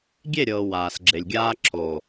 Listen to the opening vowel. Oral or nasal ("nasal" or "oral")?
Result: oral